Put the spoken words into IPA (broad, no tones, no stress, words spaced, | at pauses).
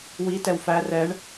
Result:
wi tɛwfæ rɛɳ